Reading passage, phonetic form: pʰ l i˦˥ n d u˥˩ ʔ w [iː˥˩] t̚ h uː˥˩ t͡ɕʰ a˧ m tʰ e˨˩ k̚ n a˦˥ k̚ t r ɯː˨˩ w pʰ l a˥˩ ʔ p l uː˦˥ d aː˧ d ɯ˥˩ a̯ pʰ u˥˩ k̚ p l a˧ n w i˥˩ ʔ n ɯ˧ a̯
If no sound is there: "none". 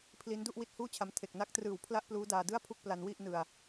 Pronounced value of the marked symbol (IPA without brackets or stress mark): i˥˩